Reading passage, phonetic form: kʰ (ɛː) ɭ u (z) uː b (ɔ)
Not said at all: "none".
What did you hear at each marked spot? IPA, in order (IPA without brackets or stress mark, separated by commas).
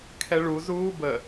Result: ɛ, z, ə